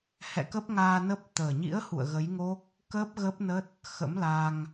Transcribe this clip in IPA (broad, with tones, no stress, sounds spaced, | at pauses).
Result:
h ɛ̰˧˨ k ə˦˥ p̚ ŋ aː˧ n ə˦˥ p̚ t̪ əː˨˩ ɲ ḭ˧˥ ə̯ h ṵ˧˨ ə̯ ɣ ə˨˦ j ŋ o˦˥ k̚ | k əː˦˥ p̚ ɣ ə˦˥ p̚ n ə˦˥ t̚ | x ə̰˧˥ m l a˧ ŋ